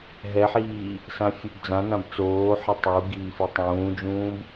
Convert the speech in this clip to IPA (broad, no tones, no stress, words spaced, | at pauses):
ɦɛħiː | sãfʲubd͡zãnãb t͡soːħɛ tˤu ɡiːfitˤũːd͡ʒũːb